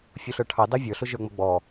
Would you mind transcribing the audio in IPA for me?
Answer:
fʲ u ɬ ə˞ ʈʰ ɑ d ɑ vʲ ə˞ ɬ ʊ ʒ ə˞ ŋ͡m ʌ ɡ͡b ɔ

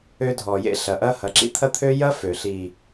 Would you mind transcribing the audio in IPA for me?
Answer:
ø˧ dʱ ɔ˨ j ḛ˦ ɬ ɐ˨ ʔ ɐ˦ h ɐ˨˦ ǁ ḭ˧ t̪ʰ ɐ˦ t̪ʰ ø˦ j ɐ˦ f ø˨ ɬ i˨

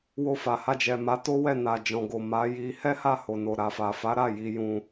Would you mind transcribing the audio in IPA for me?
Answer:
w o˧ f a˨ h a˧ d͡ʒ ɛ˨ m a˨˦ t o˦ w ɛ˦˨ n a˨ d͡ʒ ɔ̃˨ ɡ o˨ m a˨˦ j i˧ h ɛ˦ h a˦˨ h o˨ n o˨ ɾ a˨ f a˨ f a˨˦ ɾ a˦˨ j i˨˦ j ũ˧

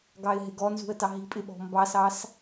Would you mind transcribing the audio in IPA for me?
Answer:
ɡ ɑ ɪ̯ ɦ ɪ ɡ ɔ n z ṳ ə̯ t ɑ ɦ i̤ pʼ ɪ ɓ ɔ̤ m b ɑ s ɑ s

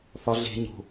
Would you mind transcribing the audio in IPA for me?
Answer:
f ɒ ɮ e̤ ɲ o̤

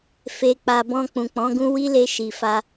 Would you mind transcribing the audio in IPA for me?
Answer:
f e˨ k͡p a˨ b ɔ̃˧ k͡p ũ˨ k͡p ɔ̃˨˦ ɡ ũ˦ w i˦ l e˧ ʃ i˨ f a˧

